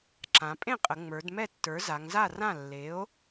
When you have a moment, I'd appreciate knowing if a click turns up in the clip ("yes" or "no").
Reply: yes